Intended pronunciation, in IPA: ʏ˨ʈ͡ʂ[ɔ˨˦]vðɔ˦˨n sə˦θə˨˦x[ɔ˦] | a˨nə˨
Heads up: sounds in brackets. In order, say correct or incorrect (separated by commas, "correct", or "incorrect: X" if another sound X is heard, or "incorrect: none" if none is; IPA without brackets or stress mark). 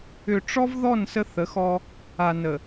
incorrect: ɔ˦, correct